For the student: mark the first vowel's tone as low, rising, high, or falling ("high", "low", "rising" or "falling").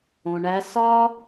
low